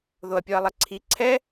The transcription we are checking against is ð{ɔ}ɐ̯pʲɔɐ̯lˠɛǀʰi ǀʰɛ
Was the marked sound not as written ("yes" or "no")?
yes